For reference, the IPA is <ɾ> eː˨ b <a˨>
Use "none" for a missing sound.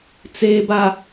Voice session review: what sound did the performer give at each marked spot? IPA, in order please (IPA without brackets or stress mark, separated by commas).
t͡s, a˨